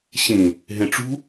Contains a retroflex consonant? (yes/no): yes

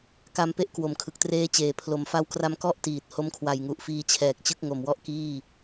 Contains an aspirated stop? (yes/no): yes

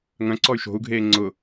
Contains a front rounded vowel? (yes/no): yes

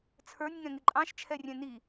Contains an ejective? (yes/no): yes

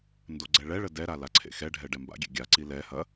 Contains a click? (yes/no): yes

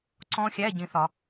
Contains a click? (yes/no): yes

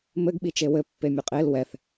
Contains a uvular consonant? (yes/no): yes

